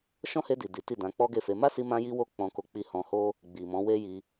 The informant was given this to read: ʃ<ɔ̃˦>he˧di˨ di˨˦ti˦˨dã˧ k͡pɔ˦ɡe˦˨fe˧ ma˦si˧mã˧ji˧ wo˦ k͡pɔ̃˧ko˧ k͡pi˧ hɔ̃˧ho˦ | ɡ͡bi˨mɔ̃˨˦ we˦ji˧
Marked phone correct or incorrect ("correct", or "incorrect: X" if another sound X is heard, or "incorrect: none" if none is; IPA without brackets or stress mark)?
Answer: correct